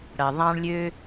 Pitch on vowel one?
low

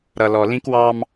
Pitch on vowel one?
low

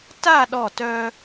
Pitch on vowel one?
falling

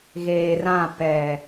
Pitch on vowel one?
low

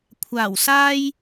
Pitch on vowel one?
low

